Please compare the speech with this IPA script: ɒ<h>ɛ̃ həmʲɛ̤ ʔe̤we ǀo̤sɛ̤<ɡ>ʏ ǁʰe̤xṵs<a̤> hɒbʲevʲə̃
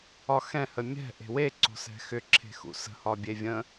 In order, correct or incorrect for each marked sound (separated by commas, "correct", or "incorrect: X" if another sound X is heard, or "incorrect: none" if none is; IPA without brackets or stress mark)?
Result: incorrect: x, incorrect: x, incorrect: ə̤